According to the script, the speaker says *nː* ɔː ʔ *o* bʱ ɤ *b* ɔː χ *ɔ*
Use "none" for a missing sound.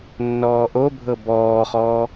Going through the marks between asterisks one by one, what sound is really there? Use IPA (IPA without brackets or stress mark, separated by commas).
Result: nː, o, b, ɔː